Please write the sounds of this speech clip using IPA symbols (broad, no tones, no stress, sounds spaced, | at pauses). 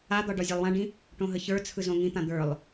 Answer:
a d̪ ɒ ɖ ɒ zʲ a lˠ w ã ɖ ĩ | ʈ õ ɦ ə ç ə˞ t͡sʰ ɯ z õ ŋ ĩ t̪ ã d̪ ə˞ lˠ